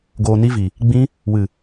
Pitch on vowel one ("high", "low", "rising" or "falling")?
low